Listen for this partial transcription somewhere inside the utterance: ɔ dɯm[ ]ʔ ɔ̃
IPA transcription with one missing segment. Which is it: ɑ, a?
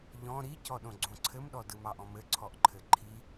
ɑ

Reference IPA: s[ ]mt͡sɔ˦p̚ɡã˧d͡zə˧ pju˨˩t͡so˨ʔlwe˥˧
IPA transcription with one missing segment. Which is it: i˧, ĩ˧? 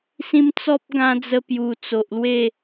ĩ˧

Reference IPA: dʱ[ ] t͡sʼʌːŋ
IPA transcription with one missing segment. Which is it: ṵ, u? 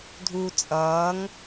u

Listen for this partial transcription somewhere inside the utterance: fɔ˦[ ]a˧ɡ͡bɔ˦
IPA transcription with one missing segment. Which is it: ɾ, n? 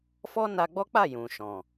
n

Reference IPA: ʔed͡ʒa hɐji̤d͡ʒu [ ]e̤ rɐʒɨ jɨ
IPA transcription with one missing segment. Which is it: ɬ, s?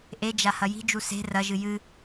s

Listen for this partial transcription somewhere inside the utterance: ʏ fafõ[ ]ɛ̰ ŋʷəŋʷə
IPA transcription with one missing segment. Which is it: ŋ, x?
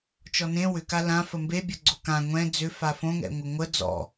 ŋ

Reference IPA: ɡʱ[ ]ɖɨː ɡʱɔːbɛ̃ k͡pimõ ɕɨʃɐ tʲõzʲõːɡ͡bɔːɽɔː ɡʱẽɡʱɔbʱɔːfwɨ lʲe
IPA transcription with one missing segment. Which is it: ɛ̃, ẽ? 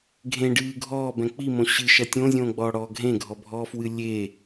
ẽ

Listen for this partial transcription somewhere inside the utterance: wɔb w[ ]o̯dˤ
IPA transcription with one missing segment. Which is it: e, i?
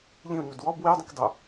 i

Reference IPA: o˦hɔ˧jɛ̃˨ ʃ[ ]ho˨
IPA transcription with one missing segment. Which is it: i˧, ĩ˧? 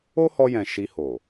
i˧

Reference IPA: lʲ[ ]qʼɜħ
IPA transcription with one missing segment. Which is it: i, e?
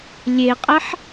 e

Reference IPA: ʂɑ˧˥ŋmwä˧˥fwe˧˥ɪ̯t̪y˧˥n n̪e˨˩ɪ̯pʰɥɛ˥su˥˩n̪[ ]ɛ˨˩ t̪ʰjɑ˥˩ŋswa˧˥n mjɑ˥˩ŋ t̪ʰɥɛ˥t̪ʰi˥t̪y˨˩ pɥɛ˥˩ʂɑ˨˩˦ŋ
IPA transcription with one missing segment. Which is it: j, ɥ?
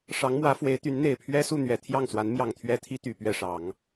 ɥ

